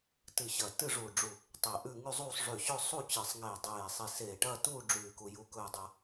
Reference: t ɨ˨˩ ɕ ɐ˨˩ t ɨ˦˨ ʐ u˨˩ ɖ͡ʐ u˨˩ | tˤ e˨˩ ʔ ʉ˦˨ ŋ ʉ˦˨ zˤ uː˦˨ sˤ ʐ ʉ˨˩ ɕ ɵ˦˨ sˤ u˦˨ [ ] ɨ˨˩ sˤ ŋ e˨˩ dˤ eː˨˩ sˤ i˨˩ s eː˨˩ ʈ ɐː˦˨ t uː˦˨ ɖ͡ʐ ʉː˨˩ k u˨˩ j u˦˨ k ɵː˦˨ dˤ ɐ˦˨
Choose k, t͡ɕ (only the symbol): t͡ɕ